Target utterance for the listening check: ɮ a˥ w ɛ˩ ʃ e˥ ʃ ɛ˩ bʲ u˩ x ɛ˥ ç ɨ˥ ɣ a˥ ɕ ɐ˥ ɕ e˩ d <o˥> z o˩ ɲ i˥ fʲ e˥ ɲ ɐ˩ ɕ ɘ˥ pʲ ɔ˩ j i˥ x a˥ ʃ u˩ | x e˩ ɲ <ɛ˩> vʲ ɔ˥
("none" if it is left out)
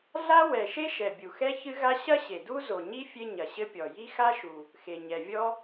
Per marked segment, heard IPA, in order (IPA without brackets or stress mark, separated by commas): u˥, ɛ˩